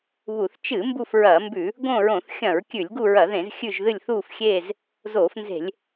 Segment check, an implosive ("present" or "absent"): absent